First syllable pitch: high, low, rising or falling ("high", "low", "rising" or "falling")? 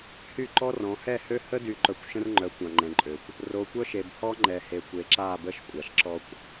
falling